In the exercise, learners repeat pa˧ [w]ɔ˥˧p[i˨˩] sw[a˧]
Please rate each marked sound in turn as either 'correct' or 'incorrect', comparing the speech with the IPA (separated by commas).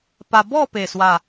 incorrect, incorrect, incorrect